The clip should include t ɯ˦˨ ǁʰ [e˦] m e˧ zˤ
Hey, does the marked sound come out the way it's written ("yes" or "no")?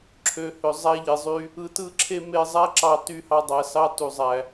yes